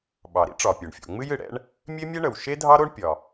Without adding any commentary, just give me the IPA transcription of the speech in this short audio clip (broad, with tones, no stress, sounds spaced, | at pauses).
ɓ ɑ˩ ɾ ḭ˥ ʈ͡ʂ ɒ˩ pʲ o˩ ɳ fʲ o̰˩ ŋ͡m ɨ˥ j ɨ˩ ɽ ɛ̰˥ ɳ | mʲ e˥ mʲ ɛ˥ ɳ ə˩ w ʃ e˥ dʱ ɑ˥ ɾ o˥ ɳ pʲ ɒ˩